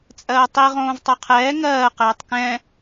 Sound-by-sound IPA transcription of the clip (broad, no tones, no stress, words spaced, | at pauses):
t͡sʼɜːtˤi ʁõːvtˤoqʰɛː ŋɜː qɛːtˤkɛ̃